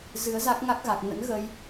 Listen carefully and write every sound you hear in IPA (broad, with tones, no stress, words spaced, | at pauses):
zɨ˨˦ə̯za˦˥k̚ŋa˦˥k̚ɣa˨˩k̚ nə̰˧˥nɣə˧j